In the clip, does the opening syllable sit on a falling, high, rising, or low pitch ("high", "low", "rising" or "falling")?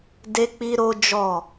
high